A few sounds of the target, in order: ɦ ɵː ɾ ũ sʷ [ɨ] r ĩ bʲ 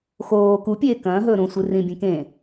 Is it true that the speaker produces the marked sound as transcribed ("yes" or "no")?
yes